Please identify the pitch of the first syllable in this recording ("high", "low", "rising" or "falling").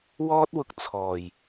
high